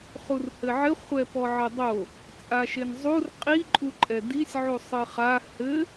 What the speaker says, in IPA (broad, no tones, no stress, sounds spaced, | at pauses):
χ u r h ɘ ʕ ɘ χʷ ɛ p ɔ ʕ ɘ dˤ o | t͡sʼ a ʃ e n zˤ u r qʼ i ǃʼ u ǃʼ ɛ d i sʲ ʕ u sˤ ɨ χ a h ɘ